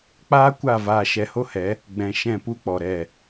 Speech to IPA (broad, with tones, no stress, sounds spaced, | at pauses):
k͡p aː˦ kʷ a˦˨ v aː˧ ʃ ɛ˧ h o˦ h ɛ˨˦ | ɡ͡b ɛ̃˧ ʃ ɛ̃˦˨ p u˦ k͡p ɔ˨ ɾ ɛ˦˨